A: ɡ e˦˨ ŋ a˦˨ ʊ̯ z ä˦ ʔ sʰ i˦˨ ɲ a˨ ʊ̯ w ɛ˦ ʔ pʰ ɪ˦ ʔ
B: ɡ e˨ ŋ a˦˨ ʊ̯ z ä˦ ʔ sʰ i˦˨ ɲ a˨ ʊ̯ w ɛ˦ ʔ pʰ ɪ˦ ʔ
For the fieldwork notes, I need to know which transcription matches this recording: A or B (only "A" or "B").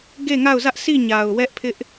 A